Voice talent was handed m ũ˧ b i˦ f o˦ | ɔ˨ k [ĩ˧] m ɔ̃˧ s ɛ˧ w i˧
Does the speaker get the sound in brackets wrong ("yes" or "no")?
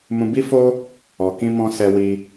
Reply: no